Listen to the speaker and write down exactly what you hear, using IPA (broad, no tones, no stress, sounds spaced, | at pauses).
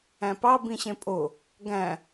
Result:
æ̃ p ɑ b ĩ ɕ ẽ pʼ o | ɡ æ̃